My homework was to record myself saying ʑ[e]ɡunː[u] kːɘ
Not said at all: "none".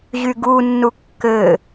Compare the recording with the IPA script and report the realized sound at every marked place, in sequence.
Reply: y, u

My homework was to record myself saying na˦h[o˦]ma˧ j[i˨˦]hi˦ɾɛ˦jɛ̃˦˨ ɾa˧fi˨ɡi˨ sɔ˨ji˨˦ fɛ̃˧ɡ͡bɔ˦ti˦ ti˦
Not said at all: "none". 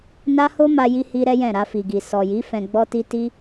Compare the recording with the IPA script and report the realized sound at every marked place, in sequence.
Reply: o˦, i˦

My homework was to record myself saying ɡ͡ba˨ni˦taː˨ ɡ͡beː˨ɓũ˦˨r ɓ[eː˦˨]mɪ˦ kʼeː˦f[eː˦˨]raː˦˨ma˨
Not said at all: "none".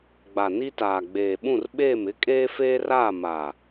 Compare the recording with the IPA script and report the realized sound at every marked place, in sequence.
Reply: eː˦˨, eː˦

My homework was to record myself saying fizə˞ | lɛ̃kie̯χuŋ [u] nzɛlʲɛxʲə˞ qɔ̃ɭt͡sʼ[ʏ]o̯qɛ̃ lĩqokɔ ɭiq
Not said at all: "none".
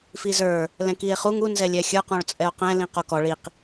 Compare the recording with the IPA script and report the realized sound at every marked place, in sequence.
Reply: u, ɛ

